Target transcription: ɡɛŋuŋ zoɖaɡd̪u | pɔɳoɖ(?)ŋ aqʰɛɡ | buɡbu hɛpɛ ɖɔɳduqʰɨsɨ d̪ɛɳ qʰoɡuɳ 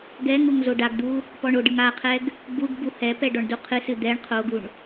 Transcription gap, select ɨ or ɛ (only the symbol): ɨ